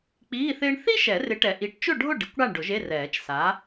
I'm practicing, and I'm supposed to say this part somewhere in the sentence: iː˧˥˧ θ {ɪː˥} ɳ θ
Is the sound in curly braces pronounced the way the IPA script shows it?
yes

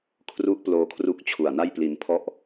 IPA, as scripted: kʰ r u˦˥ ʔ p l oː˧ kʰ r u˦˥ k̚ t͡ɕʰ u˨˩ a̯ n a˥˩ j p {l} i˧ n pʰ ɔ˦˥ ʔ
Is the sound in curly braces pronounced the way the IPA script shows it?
yes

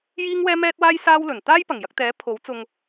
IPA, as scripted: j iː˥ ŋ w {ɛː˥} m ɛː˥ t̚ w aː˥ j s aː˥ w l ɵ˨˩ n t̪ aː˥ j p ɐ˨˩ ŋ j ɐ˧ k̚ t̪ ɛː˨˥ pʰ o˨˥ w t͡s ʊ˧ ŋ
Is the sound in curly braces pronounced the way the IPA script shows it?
yes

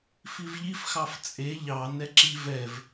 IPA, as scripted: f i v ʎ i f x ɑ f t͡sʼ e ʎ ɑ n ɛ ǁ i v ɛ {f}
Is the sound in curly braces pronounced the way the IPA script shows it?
no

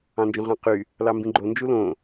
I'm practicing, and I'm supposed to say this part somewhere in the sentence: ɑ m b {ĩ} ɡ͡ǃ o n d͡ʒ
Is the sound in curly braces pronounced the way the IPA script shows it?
yes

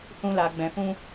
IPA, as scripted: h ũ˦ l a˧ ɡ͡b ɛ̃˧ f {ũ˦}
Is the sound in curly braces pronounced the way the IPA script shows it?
yes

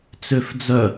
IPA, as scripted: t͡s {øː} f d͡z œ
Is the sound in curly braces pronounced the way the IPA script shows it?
no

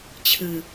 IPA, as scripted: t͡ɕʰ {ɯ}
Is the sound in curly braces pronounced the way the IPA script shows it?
yes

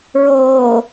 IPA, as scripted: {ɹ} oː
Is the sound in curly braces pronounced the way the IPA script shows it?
yes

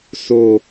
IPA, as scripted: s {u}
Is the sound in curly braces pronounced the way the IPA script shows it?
no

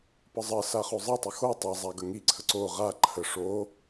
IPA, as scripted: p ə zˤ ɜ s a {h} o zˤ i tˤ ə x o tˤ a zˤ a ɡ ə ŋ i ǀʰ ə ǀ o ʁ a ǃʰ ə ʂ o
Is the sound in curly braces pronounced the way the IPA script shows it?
no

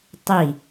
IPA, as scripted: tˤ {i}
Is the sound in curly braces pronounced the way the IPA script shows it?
yes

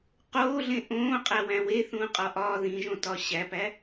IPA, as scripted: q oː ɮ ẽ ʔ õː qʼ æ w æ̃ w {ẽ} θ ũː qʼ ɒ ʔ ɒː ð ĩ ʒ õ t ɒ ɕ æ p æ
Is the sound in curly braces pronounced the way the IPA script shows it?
no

